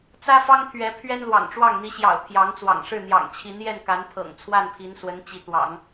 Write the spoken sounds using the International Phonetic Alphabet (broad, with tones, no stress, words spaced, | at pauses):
t͡sä˥fɑ˥ŋt̪ʰɥɛ˧˥ pʰɥɛ˥nlwɑ̰˨˩ŋʈ͡ʂwɑ˥˩ŋ n̪i˧˥ɕjɑ̰˨˩ʊ̯ t̪ʰjɑ˧˥ŋt͡swɑ̰˨˩ŋʂɻ̩˥˩ n̪jɑ̰˨˩ŋt͡ɕʰi˧˥njɛ˥˩n ka˧˥npʰɤ̰˨˩ŋt͡sʰwa˥˩n pʰi˧˥nswə˧˥n t͡ɕi˧˥ t̪wɑ̰˨˩˦ŋ